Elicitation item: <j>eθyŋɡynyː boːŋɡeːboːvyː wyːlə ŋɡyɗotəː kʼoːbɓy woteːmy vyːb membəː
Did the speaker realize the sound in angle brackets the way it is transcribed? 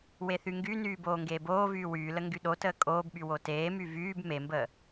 no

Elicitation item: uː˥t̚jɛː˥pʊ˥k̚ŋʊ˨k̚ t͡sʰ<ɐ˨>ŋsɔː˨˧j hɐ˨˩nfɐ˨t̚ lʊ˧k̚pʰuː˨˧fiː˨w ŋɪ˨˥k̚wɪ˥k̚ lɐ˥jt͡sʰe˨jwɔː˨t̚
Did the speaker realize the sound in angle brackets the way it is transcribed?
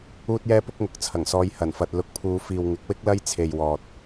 no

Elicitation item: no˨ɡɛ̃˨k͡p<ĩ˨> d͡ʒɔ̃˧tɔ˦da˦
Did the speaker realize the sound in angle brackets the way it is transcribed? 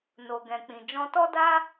yes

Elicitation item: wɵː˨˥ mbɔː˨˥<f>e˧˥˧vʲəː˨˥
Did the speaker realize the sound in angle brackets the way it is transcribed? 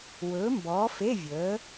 yes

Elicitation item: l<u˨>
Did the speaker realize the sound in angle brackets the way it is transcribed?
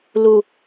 yes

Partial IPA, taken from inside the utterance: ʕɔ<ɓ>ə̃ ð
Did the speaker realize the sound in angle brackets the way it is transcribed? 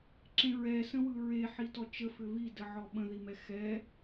yes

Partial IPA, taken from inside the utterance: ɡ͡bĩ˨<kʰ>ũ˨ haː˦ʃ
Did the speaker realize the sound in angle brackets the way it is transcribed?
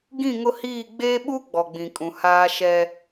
no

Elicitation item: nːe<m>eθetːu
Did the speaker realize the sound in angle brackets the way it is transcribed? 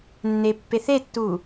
no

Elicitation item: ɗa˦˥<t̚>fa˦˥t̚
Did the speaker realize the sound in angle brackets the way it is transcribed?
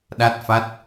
yes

